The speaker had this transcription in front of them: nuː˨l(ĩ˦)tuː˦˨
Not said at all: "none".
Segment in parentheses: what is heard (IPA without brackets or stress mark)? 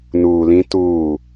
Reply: ĩ˦